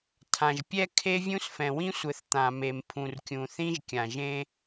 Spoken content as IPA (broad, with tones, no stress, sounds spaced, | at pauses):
tʰ ã˨ ʒ pʲ ɛ˦ kʰ e˦ vʲ ũ˦ s f ɛ̃˨ w ĩ˦ sʷ ɘ˨ θ t̪ ã˨ m e˨ m pʰ ũ˨ r kʲ ũ˨ θ ĩ˦ ʒ kʲ ã˨ ʒ ẽ˦